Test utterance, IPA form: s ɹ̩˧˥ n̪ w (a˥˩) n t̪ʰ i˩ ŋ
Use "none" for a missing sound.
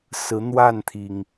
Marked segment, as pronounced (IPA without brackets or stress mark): a˥˩